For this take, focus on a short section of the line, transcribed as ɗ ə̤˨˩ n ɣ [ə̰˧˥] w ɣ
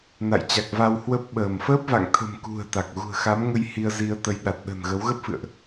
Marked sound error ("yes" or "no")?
yes